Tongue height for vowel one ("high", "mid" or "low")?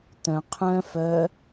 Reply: mid